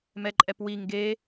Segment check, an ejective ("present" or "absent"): present